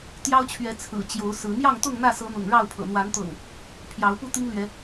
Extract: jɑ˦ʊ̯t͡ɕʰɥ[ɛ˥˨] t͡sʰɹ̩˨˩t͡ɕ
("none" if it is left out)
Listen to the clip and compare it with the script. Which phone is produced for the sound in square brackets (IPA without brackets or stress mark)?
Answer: ɛ˨˦